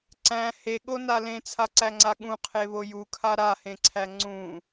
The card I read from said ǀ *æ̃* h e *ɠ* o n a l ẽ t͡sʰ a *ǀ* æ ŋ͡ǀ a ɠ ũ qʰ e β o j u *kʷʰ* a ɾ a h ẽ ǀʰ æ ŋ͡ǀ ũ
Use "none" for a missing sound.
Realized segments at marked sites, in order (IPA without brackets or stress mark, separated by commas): æ̃, ɠ, ǀ, kʰ